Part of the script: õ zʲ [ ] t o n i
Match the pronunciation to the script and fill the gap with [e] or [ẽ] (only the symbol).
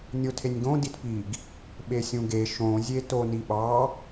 e